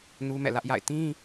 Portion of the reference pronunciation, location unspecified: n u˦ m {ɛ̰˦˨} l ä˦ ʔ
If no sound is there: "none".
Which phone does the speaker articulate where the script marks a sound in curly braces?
ɛ̰˦˨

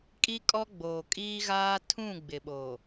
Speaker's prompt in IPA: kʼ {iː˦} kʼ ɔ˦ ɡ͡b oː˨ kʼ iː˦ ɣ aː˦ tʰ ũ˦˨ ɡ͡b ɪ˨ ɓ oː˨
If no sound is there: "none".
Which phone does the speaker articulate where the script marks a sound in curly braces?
i˦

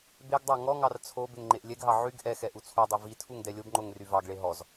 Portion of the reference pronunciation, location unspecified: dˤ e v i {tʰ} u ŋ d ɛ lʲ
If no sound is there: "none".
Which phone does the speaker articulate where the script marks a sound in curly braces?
tʰ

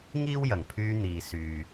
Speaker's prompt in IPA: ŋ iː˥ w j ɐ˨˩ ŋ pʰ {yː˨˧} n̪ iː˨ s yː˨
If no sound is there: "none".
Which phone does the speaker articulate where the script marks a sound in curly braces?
yː˧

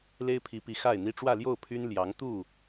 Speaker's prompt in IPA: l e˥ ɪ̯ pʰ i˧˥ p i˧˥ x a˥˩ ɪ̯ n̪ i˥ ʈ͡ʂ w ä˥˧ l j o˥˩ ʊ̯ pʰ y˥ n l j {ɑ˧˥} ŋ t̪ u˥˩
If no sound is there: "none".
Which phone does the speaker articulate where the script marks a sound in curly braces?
ɑ˧˥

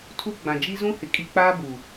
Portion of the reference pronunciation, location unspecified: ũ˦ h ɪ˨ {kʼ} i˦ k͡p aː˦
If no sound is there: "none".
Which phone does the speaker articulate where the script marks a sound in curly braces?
kʼ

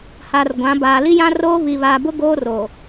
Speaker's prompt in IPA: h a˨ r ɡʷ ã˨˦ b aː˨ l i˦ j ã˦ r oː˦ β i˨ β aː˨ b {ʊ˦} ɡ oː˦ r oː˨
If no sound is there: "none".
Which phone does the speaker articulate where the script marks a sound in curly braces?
ʊ˦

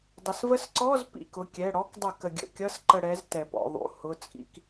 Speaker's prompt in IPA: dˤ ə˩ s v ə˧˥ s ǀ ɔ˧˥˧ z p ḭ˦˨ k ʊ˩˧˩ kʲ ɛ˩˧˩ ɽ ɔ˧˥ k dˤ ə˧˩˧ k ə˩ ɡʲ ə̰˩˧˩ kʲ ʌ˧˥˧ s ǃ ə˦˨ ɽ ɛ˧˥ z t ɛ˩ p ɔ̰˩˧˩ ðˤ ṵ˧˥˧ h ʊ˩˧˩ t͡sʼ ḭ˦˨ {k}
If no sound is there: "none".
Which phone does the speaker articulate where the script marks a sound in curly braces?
k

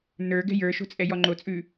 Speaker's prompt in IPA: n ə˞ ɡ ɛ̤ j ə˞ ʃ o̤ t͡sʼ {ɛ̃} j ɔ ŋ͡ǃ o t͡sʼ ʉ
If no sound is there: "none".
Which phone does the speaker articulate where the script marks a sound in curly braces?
ɛ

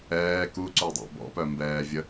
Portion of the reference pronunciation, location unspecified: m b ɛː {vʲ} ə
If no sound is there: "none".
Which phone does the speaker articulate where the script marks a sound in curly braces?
vʲ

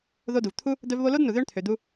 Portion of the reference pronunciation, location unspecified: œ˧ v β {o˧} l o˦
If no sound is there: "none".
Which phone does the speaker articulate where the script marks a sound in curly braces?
o˧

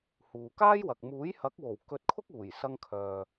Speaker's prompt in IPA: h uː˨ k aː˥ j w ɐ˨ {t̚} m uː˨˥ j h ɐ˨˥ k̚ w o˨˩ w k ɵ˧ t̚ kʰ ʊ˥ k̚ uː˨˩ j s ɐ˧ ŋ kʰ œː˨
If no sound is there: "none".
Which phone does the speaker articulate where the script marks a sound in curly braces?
k̚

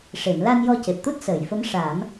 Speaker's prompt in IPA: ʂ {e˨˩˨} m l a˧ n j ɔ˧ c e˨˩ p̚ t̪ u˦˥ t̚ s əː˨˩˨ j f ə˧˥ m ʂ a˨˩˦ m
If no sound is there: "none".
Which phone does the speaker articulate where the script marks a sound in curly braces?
e˨˩˨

